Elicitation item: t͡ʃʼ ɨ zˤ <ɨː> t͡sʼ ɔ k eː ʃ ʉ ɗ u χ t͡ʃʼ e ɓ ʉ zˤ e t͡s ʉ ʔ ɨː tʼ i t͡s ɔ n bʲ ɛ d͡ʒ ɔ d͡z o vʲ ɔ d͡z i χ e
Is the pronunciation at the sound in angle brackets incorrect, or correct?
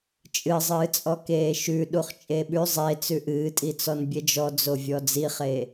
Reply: correct